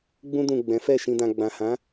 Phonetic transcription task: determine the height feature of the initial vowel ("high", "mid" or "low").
high